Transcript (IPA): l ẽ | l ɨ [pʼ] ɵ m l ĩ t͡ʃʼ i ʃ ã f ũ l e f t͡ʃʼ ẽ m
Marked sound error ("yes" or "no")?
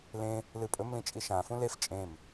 no